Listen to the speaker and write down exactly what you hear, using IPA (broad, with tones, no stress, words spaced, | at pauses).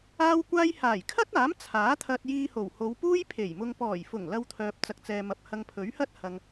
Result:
aː˥wkʷaː˥j haː˨˩jkʰɐ˥t̚aː˨˥m t͡sʰaː˨˥ t̪ʰɐ˧t̚jiː˧ho˨˩w ho˨˧wpuː˥jpʰe˨˩j mʊ˧ŋ pɔː˨˩jfʊ˨˩ŋ lɐ˧wt̪ʰœː˨p̚ t͡sɐ˨k̚t͡sɛː˨mɐ˨p̚ hɐ˧ŋpʰɵ˨˥ɥhɐ˥t̚ hɐ˨ŋ